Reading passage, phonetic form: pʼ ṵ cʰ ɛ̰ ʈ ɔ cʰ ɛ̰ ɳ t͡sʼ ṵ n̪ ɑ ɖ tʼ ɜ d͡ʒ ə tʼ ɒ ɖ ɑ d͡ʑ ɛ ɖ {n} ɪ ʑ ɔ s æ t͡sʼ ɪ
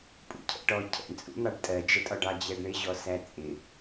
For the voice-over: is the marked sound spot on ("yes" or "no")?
no